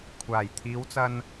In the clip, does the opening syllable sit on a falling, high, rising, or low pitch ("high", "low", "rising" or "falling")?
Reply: low